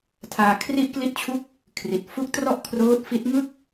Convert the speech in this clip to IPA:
tʰaː˧ kʰri˥˩ʔkli˥˩t̚t͡ɕʰu˥˩k̚ | kʰri˨˩t̚fu˦˥k̚ trɔ˥˩ʔkʰroː˦˥t̚ fi˦˥t̚ŋɯ˥˩k̚

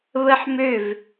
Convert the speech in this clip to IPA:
βəħ møv

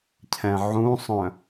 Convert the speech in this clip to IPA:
cʰɛ̃ʕũsˤœ̃

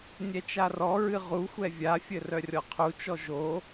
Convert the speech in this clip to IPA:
nʲɛt͡ʃarɔɹɨ ʁuxʷɛ vʲafʲɘ rœrʲɔqʰut͡ʃɔ ʒo

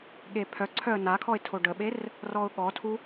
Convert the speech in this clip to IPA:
ɠepʰœǀʰœə̯ nakʰɔɪ̯ tʰoɖəɓer | rɔʊ̯ɠɔtʰu

